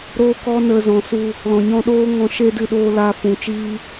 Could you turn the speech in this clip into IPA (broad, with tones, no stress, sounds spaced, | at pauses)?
ɾ oː˦ k ɔ˦ n ə˧ z ɔ̃˨ s u˧ | l ɔ̃˨ ɲ ɔ̃˧ ɗ oː˦ ŋ ɔ̃˧ ʃ e˦ d ɨ˧ ɗ oː˧ l aː˧ f ũ˨ t͡ʃ iː˦